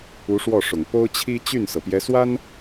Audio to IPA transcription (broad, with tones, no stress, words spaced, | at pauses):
u˧˥ʂwɔ˥˩ʂʊ˨˩ŋ po˥ʊ̯t͡ɕʰi˥ t͡ɕy˥˩nsɤ˩pjɛ˧˥swa˥n